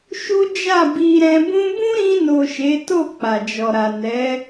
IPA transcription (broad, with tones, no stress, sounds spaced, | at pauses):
ʃ u˦ d͡ʒ a˦˨ b i˧ ɾ ɛ̃˧ b ũ˧ b ũ˦ ɾ ĩ˧ n o˨ ʃ e˨˦ t o˦˨ k͡p a˨ d͡ʒ ɔ˨ ɾ a˨ n ɛ˨˦